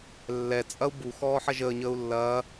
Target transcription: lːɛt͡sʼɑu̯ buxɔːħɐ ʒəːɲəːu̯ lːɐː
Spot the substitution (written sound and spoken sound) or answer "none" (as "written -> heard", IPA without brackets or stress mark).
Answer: ɑ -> ɐ